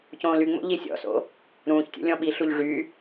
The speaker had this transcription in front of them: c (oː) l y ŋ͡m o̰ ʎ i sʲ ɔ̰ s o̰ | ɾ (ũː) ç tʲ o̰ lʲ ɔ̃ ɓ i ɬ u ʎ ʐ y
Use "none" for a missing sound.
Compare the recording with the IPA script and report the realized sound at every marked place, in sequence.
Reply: õː, ũː

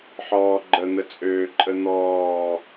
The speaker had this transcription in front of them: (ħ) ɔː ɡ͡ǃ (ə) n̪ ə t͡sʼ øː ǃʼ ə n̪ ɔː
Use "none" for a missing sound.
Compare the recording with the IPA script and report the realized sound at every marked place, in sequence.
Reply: ħ, ə

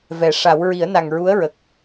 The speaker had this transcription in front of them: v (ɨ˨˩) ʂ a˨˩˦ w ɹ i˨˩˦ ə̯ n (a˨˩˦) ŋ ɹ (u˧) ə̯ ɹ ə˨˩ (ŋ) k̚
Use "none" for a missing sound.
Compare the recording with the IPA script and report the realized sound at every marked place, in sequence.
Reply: ɛ˨˩, a˨˩, u˧˥, none

